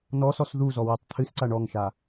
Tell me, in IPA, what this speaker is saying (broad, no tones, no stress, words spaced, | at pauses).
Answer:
nɔsɔs ðuzɔ wɨtˤt̪ʰɨsǀa ɳɔŋʃa